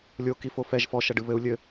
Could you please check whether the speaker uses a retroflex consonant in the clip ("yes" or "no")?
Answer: yes